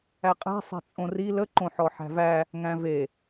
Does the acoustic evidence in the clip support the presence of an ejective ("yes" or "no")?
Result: yes